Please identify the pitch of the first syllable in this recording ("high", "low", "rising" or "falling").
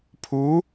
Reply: rising